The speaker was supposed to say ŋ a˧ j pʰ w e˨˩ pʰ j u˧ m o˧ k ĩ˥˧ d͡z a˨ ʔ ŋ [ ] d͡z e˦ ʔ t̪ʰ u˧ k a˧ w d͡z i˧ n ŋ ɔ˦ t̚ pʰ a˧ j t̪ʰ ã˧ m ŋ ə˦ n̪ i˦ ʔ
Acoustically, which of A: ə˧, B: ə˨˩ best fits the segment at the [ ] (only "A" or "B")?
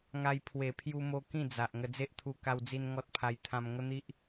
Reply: A